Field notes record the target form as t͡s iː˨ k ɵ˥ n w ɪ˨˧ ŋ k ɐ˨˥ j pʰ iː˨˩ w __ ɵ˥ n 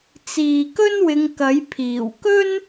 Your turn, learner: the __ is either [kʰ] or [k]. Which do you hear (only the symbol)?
k